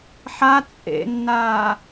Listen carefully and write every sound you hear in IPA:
ħ a t͡sʼ ḛ nː aː

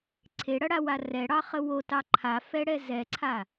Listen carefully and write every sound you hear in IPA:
ǀʰ e ɽ ɐ ɽ a w a r ɛ ɽ ɑ χ ə w o t ɑ ǃʰ a f ɛ ɽ ɛ z ɛ ǀʰ a

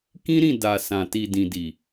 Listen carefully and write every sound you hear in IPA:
k ĩ˦ ɾ ĩ˦˨ d a˨ s ã˨ t i˨ d ĩ˨ d i˨

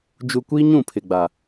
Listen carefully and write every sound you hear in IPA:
d͡ʒ u˨ kʷ iː˦ ɲ ũ˦˨ pʰ ɪ˨ ɡ͡b a˨

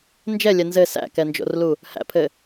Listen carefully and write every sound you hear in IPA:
n d͡ʒ ɛ lʲ ɛ n z ɘ s æ̰ k ɛ n d͡ʒ o̰ r l u | h æ̰ pʰ ɘ

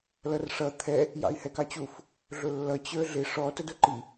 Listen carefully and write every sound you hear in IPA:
l ʌ r ʂ ʌ t̪ʰ ɛ | j ɑ̰ i̯ h ɛ k ɑ t͡ɕ u f | ɮ ʊ lː ʌ t͡ɕ ə˞ ɮ ɪ ʂ ɔ t ə d ʊ ǃ i

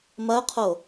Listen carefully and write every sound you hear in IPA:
m ɐ ʊ̯ qʰ o

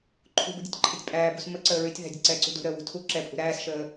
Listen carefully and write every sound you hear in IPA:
ǃʰ ṳ b ṳ dʲ ɒ tʲ ǃʰ e tʲ pʼ æː b ṳ s m ə ǀ əː ɹ y tʲ ð æ̤ dʲ ə ǀ ɛː ǀ ṳ d ṳ ɾ əː w ṳ tʰ u ǁ ɛ pʼ ṳ ɾ æː s ʃ əː

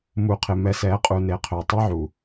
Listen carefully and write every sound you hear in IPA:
m u˨ qʰ ɪ˨ m ɛ˨ s ɛ˨˦ qʼ u˨ n e˨˦ qʰ ø˨ tˤ ɐ˦ ʕ u˨

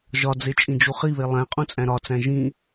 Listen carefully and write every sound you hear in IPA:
ʒ ɒ d͡z e t͡ʃʼ ĩ d͡ʒ u χ i β e lˠ æ̃ qʼ ũ t͡sʼ æ̃ ɾ ɒ t͡s æ̃ ʒ ĩ

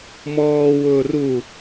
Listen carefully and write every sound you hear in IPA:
m ɔː w ʊː r u

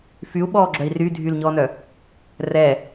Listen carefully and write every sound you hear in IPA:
f y u̯ ɓ ɔː ɡ͡ǁ œ i̯ r y dʱ y l ɲ ɔː n œ | r ɛː

